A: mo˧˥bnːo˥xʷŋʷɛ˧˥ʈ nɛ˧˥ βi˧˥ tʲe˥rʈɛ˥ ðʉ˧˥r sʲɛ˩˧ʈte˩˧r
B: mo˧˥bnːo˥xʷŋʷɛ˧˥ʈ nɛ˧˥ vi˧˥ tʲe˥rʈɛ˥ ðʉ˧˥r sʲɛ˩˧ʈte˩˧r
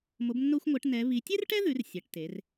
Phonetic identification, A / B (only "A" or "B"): A